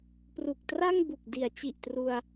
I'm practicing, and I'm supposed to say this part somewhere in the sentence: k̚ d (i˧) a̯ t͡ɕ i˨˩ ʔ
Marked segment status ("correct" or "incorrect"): incorrect